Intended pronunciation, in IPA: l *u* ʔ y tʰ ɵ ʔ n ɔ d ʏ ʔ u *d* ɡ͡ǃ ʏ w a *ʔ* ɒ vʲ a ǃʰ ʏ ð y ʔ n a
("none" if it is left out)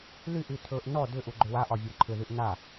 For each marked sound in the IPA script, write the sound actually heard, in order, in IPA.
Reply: y, none, ʔ

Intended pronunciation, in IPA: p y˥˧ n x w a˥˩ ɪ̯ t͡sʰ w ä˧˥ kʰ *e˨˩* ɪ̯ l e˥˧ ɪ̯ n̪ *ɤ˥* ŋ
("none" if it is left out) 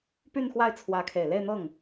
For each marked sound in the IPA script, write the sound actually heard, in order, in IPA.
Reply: e˨˩, ɤ˥˩

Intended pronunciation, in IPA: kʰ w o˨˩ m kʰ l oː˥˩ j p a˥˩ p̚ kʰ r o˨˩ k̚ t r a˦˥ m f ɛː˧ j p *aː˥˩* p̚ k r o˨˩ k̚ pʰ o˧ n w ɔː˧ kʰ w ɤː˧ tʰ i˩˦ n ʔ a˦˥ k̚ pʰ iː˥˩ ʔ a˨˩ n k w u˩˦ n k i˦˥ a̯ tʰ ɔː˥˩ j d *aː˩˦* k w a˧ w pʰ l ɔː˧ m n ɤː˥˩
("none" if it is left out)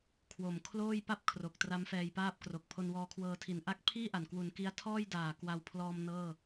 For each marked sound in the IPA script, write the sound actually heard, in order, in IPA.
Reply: aː˥˩, aː˨˩

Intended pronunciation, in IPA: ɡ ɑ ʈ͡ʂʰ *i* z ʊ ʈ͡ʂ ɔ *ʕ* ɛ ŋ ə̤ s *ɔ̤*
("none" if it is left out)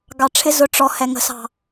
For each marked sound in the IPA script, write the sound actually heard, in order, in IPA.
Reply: ɪ, h, ɑ̤

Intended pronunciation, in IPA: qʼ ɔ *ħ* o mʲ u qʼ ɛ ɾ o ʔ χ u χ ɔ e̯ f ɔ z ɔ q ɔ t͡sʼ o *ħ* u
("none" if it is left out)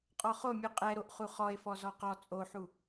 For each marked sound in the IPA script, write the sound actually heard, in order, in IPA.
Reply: χ, ħ

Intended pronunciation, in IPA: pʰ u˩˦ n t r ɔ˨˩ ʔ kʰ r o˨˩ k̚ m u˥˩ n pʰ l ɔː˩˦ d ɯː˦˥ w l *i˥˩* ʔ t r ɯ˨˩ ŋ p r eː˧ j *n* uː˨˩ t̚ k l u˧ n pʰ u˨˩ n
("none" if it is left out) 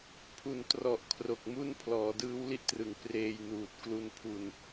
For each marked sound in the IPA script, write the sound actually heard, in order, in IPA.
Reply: i˥˩, n

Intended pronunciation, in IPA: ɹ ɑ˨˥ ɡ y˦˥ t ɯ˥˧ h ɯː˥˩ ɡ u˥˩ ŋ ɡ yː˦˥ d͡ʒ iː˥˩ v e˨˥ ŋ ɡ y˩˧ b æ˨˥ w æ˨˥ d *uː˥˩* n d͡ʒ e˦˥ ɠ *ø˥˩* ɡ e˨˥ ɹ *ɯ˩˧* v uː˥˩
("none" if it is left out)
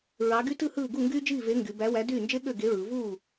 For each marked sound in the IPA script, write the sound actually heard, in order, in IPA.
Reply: yː˥˩, ø˥˩, ɯ˩˧

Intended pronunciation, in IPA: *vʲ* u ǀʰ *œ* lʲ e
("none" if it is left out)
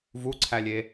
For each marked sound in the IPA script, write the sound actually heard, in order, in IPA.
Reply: v, æ

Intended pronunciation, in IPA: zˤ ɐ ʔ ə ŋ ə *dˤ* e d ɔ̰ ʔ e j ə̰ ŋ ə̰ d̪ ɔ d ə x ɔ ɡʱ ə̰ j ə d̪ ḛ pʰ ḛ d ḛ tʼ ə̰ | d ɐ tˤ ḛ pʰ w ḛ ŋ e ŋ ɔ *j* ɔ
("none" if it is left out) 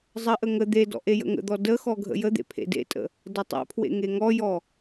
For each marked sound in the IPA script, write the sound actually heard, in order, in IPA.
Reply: d̪, j

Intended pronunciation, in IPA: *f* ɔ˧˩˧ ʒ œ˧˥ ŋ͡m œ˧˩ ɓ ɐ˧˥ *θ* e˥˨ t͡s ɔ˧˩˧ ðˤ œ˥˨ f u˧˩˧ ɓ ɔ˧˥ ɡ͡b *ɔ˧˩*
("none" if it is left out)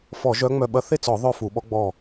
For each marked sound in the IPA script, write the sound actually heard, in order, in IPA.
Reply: f, θ, ɔ˧˩

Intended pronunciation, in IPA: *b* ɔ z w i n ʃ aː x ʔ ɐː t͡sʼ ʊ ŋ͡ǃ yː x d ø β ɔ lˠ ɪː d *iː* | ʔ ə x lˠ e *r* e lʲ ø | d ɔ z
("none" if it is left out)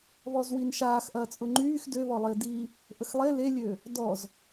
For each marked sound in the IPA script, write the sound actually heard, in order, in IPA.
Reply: β, iː, l

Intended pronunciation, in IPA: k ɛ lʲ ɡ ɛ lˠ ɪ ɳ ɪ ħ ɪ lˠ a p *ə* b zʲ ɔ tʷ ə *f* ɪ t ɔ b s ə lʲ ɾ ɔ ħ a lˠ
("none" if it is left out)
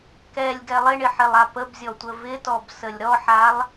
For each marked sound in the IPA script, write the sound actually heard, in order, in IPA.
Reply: ə, v

